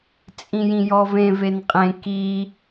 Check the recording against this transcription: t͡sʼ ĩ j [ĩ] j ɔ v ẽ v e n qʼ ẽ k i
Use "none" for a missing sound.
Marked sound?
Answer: ĩ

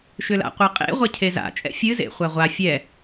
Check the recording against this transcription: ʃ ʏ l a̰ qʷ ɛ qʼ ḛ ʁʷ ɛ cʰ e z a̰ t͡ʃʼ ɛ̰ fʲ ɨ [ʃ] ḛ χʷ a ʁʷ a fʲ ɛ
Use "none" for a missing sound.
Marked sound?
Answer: z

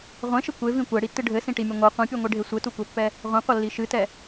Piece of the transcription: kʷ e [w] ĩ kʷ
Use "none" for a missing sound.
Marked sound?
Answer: v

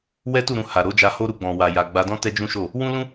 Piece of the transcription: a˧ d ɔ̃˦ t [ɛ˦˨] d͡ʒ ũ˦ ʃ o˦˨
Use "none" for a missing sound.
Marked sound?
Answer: ɛ˦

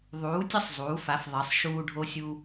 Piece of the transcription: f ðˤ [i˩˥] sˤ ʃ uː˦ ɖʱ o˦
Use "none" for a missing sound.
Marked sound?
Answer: i˩˥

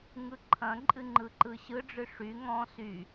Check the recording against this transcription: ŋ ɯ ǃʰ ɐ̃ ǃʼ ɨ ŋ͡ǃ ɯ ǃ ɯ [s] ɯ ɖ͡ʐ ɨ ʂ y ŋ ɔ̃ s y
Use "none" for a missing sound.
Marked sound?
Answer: ɕ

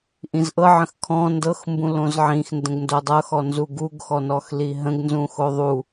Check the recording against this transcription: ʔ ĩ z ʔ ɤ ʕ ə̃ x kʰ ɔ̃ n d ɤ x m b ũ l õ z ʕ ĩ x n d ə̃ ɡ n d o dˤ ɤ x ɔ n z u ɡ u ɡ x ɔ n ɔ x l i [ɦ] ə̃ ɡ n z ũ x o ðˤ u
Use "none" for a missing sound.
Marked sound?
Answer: ɦ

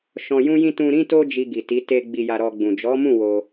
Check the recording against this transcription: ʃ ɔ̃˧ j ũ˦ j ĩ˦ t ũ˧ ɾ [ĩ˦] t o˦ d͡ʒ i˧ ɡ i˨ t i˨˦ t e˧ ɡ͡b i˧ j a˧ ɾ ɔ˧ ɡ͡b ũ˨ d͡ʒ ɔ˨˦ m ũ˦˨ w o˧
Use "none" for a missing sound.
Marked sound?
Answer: ĩ˦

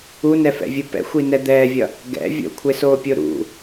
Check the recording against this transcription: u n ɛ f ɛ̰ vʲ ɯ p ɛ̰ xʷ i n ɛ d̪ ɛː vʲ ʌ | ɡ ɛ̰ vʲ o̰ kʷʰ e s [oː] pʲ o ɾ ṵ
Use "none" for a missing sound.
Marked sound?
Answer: oː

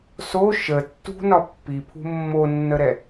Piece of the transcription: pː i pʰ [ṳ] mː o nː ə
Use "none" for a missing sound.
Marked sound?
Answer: ṳ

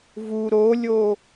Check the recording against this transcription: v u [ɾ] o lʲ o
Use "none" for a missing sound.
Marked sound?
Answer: ɾ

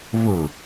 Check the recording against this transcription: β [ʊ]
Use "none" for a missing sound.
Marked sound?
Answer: ʊ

